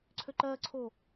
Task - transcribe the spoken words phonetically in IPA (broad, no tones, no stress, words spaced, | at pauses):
ǀʰøǃɜǀʰo